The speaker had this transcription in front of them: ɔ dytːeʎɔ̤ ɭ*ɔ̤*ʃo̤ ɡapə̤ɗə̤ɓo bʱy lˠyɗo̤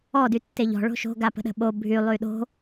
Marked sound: incorrect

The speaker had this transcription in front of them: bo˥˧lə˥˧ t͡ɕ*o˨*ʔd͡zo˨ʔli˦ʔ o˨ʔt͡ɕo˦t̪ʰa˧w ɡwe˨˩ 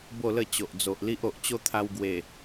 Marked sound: correct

